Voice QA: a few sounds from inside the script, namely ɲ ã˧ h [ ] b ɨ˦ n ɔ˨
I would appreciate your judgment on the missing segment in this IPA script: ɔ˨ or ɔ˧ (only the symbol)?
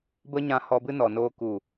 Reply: ɔ˧